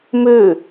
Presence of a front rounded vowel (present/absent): present